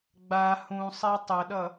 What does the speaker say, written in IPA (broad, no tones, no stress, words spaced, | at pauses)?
ɡ͡ba hũsˤe tˤɐɗʌ